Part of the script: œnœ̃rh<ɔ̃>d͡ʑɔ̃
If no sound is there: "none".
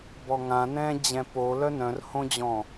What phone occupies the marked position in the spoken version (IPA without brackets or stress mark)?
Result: õ